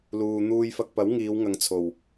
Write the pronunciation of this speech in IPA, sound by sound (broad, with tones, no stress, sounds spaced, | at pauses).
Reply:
l uː˨ n̪ uː˧ j f ɐ˧ k̚ p ɐ˨˥ w ŋ iː˨˧ w ŋ ɐ˨ ŋ t͡sʰ o˨˩ w